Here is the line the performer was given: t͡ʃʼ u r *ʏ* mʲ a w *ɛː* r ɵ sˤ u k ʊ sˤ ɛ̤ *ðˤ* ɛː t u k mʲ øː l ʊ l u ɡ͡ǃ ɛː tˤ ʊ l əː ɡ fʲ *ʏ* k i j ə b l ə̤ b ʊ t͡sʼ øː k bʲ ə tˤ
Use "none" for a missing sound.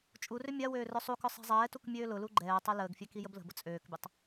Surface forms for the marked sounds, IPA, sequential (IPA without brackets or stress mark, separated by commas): ʏ, øː, zˤ, ɛ